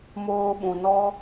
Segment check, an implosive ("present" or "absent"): present